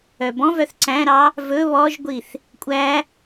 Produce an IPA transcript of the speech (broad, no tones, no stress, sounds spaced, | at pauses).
œ b ɔ̃ v œ θ ǀ æ̃ ɾ ɑ | v ɵ β ɔ ʒ ɡʷ i θ | kʷʼ æ